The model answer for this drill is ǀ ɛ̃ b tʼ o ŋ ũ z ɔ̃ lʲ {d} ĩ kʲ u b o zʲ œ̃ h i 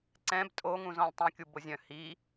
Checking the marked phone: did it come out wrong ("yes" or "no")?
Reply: yes